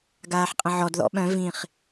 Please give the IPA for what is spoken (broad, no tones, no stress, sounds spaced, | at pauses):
ɡ aː ħ qʼ ə̃ ʕ ɔ d ð ɔ̰ ɓ œ̃ v ĩ χ